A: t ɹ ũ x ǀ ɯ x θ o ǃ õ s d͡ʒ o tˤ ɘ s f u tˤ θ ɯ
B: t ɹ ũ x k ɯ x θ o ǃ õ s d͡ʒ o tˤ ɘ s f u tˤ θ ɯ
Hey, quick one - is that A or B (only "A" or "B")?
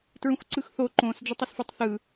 A